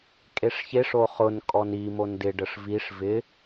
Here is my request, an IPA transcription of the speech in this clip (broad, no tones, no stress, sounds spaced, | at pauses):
kʼ e ʂ ç e ʂ o χ ʊ n kʼ ɔ n i m o n d ɪ ɖ ə ʂ v i ʂ v ɪ